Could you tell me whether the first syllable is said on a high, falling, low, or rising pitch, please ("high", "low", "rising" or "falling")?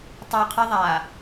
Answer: low